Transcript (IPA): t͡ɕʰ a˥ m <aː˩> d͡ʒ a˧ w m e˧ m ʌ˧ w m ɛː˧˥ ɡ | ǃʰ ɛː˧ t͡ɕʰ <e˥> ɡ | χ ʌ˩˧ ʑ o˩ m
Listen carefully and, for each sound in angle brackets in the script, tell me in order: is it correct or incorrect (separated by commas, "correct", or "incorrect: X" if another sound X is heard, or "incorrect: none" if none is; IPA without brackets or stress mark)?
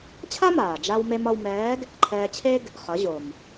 correct, correct